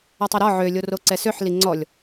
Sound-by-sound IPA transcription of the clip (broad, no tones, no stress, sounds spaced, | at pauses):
ɒ tˤ ɐ ɾ ɒ ʕ ø lʲ o r o ǀ ɛ s ø ħ l i ŋ͡ǀ ɔ lʲ